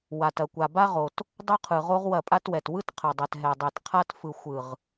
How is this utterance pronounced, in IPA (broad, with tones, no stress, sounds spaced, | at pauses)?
w a˨ t ɐ˨ kʷ a˨ b a˦ ʁ o˨ t | dˤ o˦ qʰ ɯ˨ ʁ o˦ ʁ w ɐ˦˨ pʼ a˦ t w ɛ˨ t w ɯ˦ t qʰ ɐ˨ dˤ ɛ˨ t ɦ ɛ˨ dˤ ɛ˨ t qʰ a˦ t f ɯ˨ xʷ ɯ˨ ʁ